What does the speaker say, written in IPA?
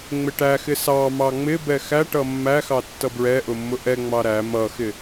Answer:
ŋ͡m ɪ ʈ æ x ɪ s ɑ m ɑ ŋ͡m ɪ b ɛ x æ ʈ ʌ mː æ x ɑ tː ʌ b ɹ ɛ ʔ ʊ mː ʊ ʔ ɛ ŋ͡m ɑ ɾ æ m ʌ x ɪ

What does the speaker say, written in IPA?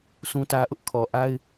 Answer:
s ũ˦ t ä˦ ʔ ʊ˦ ʔ kʰ ɔ˨ ʔ a˦ ɪ̯

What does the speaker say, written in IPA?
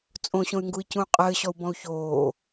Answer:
t͡sʼ õ ɕ õ y̯ ŋ ɡ u i̯ c ũ y̯ qʼ ɘː ɕ ɔ u̯ b ɔ̃ u̯ ç oː

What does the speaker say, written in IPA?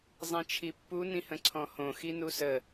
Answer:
zˤ ĩ t͡ʃʰ i pː u n ĩ h ə̃ ǀʰ ɔ̃ h õ x i n u s ə

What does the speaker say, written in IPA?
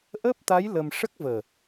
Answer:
ʔ əː˦˥ p̚ t̪ a˧˥ j l ə˧ m ʂ ə˦˥ k̚ v əː˨˩

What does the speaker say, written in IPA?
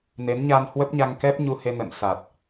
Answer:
n e˨˦ n ɲ a˧ n h w ə˦˥ p̚ ɲ a˧ ŋ k ɛ˦˥ p̚ ɲ u˧ h e˧ n ə̰˧˨ n s a˨˩ t̚

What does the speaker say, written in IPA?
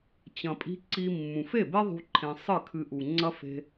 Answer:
t͡ɕ ɐ̃˨ pʼ i̤˧ ǀ i˦ mː ũ˨ f e˦˨ b e˦ ðˤ ṳ˧ ǃʰ ẽ˧ sˤ ɨ˦˨ kʰ ɨ˧ ʔ u˨ ŋ͡ǀ ɐ˦ f e̤˧

